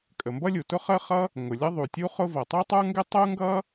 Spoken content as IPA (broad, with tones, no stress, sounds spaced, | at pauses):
kʼ ə˩ m b ʌ˥ lʲ u˩ t ʊ˥ χ ə˥ χ ʌ˥ | ŋ ʊ˩ lʲ ʌ˥ ðˤ u˩ tʲ u˥ χ ʊ˥ v ʌ˩ tˤ u˥ tˤ ə˞˥ ŋ ɡ ɪ˥ tˤ u˥ ŋ ɡ ʌ˥